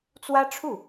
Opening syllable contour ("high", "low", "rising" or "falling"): high